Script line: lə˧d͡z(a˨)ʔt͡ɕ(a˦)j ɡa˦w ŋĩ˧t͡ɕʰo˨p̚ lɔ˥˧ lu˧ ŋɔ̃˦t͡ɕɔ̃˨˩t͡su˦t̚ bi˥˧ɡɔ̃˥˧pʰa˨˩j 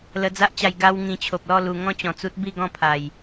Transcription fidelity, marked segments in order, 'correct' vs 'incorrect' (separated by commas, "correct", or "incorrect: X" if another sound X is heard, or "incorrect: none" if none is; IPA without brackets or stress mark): incorrect: a˦, incorrect: a˧